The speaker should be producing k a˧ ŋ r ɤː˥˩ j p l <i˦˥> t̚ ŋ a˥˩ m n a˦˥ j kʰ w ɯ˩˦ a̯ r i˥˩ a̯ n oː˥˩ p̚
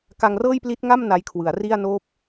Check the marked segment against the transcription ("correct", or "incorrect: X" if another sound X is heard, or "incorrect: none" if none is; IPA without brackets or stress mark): correct